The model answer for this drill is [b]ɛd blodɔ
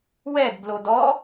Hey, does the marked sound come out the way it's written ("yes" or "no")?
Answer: no